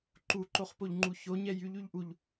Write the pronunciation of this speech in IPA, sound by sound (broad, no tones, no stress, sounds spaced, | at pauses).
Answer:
ǃ u ǃ o χ p o ʎ ŋ͡ǃ u ç o ɲ ɛ j y ʎ y ʎ ʔ u ʎ